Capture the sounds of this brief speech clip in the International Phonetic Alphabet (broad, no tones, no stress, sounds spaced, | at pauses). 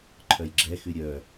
ǃʰ œ j ɡ͡ǁ ɛ x y ɾʲ œ